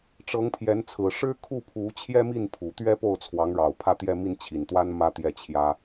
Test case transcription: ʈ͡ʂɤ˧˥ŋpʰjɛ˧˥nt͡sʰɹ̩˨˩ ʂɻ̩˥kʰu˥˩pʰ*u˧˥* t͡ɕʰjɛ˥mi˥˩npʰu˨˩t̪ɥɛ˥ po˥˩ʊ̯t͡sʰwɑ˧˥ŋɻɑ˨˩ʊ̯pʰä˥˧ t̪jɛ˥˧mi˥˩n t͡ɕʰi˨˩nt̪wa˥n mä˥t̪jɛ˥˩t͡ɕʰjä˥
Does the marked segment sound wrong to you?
no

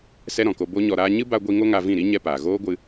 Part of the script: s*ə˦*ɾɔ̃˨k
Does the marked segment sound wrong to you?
yes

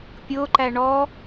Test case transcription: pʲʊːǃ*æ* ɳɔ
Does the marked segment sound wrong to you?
no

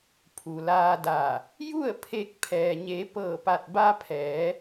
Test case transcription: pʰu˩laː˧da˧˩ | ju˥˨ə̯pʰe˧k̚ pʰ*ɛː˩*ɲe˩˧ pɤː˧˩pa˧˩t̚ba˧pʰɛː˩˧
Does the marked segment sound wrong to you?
no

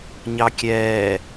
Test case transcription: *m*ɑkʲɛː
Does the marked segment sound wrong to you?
yes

